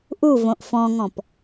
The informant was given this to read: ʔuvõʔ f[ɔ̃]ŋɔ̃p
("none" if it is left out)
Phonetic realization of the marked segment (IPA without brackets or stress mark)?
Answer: ɔ̃